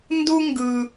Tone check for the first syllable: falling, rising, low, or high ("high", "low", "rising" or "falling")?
high